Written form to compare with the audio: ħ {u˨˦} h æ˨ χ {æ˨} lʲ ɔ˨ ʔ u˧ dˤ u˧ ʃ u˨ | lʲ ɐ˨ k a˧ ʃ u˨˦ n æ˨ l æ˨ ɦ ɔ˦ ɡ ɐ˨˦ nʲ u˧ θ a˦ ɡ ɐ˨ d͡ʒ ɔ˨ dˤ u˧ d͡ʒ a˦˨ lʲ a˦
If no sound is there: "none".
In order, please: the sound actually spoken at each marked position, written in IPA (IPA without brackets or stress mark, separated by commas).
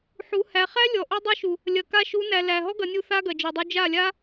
u˨˦, æ˦